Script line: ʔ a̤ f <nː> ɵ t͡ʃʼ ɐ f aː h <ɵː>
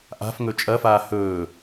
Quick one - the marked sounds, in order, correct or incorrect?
incorrect: ŋ, correct

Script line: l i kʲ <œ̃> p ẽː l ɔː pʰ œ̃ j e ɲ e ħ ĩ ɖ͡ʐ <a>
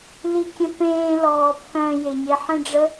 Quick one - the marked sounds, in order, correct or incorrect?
incorrect: ə̃, incorrect: ə

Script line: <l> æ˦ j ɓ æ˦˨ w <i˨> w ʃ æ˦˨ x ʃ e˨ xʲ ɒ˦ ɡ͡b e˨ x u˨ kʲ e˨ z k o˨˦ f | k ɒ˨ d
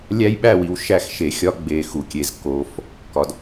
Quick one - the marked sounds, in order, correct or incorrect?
incorrect: lʲ, correct

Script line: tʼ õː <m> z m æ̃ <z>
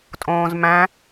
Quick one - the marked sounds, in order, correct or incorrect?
incorrect: none, incorrect: none

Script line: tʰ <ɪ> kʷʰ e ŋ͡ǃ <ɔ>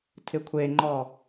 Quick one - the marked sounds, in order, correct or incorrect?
correct, correct

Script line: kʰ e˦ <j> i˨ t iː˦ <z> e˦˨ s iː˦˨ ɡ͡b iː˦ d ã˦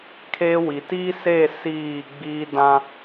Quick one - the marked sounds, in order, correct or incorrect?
incorrect: w, incorrect: s

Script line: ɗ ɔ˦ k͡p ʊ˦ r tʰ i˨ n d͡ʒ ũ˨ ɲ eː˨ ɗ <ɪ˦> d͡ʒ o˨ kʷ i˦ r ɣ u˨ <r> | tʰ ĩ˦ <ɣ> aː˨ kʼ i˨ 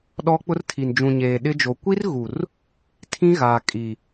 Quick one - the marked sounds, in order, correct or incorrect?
correct, correct, correct

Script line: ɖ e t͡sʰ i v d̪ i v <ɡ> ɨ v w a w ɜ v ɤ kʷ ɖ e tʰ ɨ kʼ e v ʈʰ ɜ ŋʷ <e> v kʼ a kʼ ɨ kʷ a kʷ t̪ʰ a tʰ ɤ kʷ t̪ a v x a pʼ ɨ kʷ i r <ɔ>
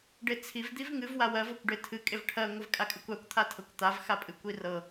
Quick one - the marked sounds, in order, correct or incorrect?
incorrect: ŋ, incorrect: ɨ, incorrect: ɤ

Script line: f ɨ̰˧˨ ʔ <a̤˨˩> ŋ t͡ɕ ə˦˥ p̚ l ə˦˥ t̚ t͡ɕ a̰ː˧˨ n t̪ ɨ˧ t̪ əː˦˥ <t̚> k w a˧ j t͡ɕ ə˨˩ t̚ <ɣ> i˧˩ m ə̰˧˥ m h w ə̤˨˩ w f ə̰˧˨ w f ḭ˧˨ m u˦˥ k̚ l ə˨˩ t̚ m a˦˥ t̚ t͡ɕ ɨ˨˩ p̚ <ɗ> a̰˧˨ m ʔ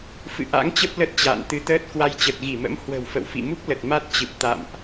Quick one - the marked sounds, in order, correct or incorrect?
incorrect: a̰˧˥, correct, correct, incorrect: t̪

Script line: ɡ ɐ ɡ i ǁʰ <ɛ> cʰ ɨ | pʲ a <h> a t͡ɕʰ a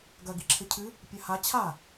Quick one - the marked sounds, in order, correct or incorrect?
incorrect: ɘ, correct

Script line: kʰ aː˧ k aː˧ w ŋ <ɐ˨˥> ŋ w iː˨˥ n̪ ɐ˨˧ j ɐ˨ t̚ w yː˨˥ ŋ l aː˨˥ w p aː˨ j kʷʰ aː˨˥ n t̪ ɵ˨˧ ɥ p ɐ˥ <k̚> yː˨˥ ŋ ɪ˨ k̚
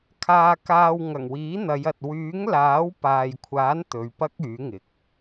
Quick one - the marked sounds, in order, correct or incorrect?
incorrect: ɐ˨˩, correct

